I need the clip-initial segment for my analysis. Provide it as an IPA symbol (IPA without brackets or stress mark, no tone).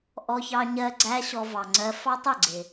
ʔ